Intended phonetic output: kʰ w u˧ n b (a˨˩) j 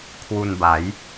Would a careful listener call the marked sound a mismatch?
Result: yes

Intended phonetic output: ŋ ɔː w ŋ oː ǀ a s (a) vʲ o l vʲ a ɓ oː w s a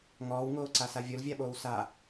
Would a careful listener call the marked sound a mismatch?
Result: no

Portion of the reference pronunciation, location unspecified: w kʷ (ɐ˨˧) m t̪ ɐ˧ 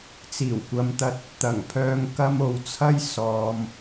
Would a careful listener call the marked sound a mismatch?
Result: no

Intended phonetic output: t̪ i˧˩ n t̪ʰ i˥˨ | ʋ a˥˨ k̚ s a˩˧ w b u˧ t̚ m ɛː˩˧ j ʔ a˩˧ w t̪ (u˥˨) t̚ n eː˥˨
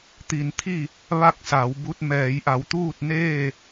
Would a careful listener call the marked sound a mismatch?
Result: yes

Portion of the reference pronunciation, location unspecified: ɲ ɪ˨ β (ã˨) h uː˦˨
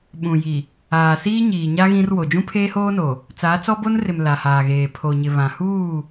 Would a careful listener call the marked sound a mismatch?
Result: no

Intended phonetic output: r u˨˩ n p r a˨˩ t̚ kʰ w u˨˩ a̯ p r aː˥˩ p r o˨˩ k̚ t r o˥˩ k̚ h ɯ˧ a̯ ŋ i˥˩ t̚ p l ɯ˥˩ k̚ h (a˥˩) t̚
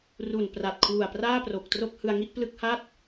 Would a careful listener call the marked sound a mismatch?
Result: no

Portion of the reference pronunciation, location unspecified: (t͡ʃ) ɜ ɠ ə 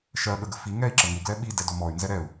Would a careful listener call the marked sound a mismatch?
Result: yes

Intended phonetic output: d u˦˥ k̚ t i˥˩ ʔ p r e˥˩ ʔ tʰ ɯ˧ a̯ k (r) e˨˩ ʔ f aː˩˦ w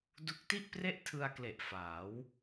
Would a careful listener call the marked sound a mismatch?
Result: yes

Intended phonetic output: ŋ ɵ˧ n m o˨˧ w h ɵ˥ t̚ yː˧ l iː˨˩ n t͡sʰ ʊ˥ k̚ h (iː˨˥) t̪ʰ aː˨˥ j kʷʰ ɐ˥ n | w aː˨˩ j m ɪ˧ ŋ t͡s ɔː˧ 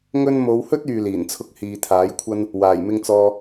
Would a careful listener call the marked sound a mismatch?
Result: yes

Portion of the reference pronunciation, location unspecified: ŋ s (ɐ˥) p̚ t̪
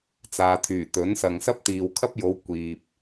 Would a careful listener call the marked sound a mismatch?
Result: no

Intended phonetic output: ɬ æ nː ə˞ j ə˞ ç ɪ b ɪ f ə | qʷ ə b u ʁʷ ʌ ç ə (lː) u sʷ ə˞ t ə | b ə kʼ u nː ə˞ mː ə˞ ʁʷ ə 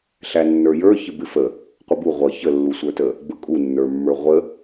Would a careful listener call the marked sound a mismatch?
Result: no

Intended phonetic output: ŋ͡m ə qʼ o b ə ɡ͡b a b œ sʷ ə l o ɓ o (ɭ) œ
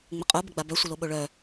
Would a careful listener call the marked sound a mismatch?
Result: no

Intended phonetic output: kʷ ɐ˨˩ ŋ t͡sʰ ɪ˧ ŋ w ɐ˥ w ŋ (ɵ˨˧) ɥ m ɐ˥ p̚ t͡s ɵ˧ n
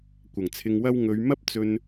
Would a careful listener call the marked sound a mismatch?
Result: no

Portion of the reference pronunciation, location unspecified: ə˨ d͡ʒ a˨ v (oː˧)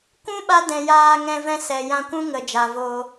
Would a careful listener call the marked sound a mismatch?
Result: no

